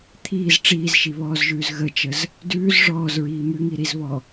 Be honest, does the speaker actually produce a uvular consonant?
no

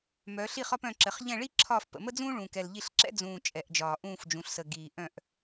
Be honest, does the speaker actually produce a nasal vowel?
yes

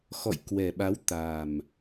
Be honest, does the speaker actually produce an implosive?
yes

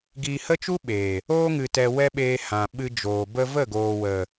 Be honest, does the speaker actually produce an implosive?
yes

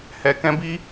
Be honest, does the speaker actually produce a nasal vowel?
yes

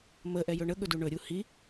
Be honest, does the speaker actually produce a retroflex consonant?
yes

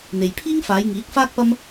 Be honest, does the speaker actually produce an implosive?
no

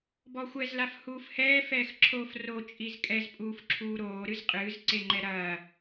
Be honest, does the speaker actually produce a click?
yes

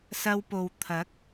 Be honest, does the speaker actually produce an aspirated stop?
yes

